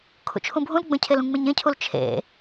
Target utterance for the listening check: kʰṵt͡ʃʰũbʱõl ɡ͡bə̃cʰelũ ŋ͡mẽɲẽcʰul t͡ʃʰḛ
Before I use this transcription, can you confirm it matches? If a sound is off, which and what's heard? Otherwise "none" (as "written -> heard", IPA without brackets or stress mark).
õ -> ũ